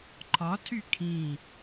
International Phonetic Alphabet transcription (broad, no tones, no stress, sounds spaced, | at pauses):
ǃʰ ɒ tʰ y kʰ ĩ